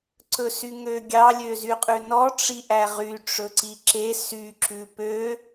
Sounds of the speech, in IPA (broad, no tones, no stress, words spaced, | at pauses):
ǀɵsyŋøɡʲɑ lʲøzyqʼʉnɔ ʈ͡ʂiʔæʁy ʈ͡ʂɵǀiǁe sy ǁʉpø